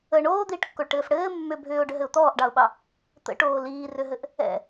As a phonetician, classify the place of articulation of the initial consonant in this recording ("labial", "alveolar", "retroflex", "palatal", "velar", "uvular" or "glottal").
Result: retroflex